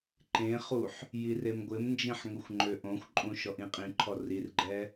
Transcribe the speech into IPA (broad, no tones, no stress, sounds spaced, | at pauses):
ǃ ẽ χ u ħ | j i r e m ɡʷ ɪ m n d͡ʒ ĩ ħ ŋ ʊ xʷ ŋ͡ǃ ø ʔ õ xʷ ǃʼ ũ ʃ ɔ ʔ ĩ qʼ ĩ ǃʰ ɔ r i r ɡ͡ǃ ɛ